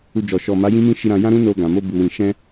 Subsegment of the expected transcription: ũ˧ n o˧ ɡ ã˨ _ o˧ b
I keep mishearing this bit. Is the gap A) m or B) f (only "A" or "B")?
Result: A